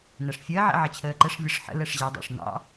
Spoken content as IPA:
n æ ʂ fʲ əː ʕ ɛ̰ ʕ ʌ t͡ɕʰ əː ǃ ɛ ʂ vʲ ʌ ʂ ħ ə̰ l ɛ ʂ ʑ ɛ dˤ ɑ̰ ʂ n̪ ɑ̰

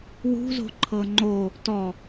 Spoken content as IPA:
w ṳ z o̤ ǃʰ ɤ ŋ͡ǃ o | t ɔ

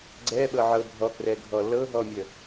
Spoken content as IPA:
ɡ͡ǀ ɛ ɓ ɤ ʕ ɤ bʱ ɔ k r ɛ ɡʱ ɔ l ɤ ɦ ɔ mʲ ə

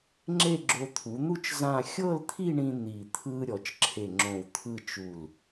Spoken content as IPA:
ŋ͡ǁ e˥˧ ɡ͡ǁ o˧ t̪ʰ u˩˧ n̪ u˥˧ t͡ʃ z ã˥˧ xʲ ɤ˥˧ l t̪ʰ i˥˧ ɳ ĩ˧ n̪ i˧˩ t̪ʰ ɯ˥ ɾʲ ɔ˩˧ t͡ʃ ǁʰ e˧˩ ŋ͡ǁ õ˧˩ w t̪ʰ ɯ˥˧ t͡ʃ u˧˩ l

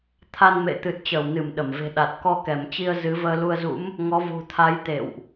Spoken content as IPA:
t̪ʰ a˧ n m ḛ˧˨ t̪ ɨ˨˩ t̚ t͡ɕ əː˧˩ w n ɨ˧˩ m ɗ ə˧˩ m v e̤˨˩ ɗ a˨˩ t̚ k ɔ˧ k ɛ˧˩ m t͡ɕ i˧ ə̯ z ɨ˨˦ v əː˧ l u˧ ə̯ z ṵ˧˥ m | ŋ ɔ˨˦ v ṳ˨˩ t̪ʰ a˨˦ j t̪ ḛ˧˨ w ʔ

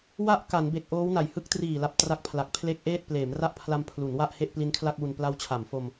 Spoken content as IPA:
w a˥˩ ʔ k a˩˦ n b e˨˩ k̚ ʔ oː˦˥ w n a˨˩ j h ɯ˦˥ k̚ t r iː˨˩ l a˨˩ p̚ t r a˦˥ k̚ pʰ l a˨˩ k̚ pʰ l e˦˥ k̚ ʔ eː˥˩ t̚ p l eː˩˦ m r a˥˩ ʔ pʰ l a˧ m pʰ l u˩˦ n w a˥˩ ʔ h e˥˩ ʔ p l i˦˥ n kʰ l a˥˩ k̚ w u˧ n p l a˦˥ w t͡ɕʰ a˩˦ m f o˧ m

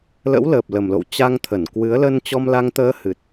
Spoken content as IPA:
l ə̰˧˥ w l əː˨˩ p̚ l ə˨˩ m l o̰˧˨ w t͡ɕ a˧ ŋ t̪ʰ ə˧˩ n k w ɨ˨˦ ə̯ l ə˧ n t͡ɕ ɔ˧ m l a˧ ŋ t̪ əː˧ h ɨ˨˩ t̚

